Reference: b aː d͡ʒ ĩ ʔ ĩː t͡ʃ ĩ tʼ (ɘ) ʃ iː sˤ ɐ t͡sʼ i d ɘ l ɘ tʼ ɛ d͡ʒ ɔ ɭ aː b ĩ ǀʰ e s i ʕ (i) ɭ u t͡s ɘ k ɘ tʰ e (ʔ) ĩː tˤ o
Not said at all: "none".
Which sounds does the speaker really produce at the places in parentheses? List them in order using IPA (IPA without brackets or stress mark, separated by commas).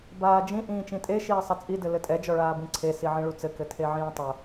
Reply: e, ĩ, ʕ